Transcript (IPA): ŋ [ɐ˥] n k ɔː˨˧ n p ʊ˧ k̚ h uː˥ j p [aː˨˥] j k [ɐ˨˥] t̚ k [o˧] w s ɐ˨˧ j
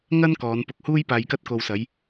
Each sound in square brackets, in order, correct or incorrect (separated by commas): correct, incorrect, incorrect, correct